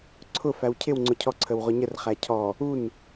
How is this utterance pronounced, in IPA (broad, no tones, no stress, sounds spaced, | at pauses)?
ǀʰ ʊ f æ w cʰ ɪ w ŋ͡ǀ ʊ cʰ ɔ ǀʰ ə w ʁ ʊ ɲ ə r χ æ cʰ ɔ | u n